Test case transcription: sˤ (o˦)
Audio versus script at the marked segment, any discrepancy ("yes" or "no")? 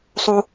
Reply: no